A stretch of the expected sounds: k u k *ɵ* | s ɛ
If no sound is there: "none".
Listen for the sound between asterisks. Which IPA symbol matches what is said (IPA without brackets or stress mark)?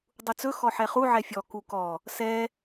ɔ